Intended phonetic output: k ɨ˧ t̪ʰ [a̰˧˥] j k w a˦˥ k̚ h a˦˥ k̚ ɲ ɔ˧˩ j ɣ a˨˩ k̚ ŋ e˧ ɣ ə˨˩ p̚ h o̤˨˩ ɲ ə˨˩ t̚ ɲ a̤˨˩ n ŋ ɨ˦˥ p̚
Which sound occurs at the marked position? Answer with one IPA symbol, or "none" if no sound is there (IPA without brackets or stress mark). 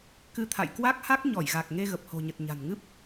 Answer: a̰˧˨